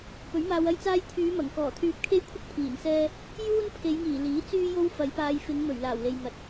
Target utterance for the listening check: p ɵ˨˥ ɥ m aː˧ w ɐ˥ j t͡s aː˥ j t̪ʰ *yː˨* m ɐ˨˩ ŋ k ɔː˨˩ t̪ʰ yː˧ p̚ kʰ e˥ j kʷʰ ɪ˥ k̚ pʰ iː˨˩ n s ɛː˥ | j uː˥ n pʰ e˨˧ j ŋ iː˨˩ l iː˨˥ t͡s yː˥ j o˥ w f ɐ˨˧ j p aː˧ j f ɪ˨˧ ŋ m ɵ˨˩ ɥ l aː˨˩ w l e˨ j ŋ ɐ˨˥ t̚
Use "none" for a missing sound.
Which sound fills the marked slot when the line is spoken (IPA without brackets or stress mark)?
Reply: yː˨˧